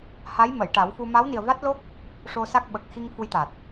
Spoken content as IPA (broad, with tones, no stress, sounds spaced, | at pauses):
h a˧˥ j m ə˨˩˨ j ʈ a˨˩˦ w f u˧ m a˧˥ w n i˨˩ ə̯ v a˦˥ t̚ l o˦˥ k̚ | ʂ o˧ s a˦˥ k̚ ɓ ə˨˩ k̚ x i˧ ŋ f u˧ j t̪ a˨˩ t̚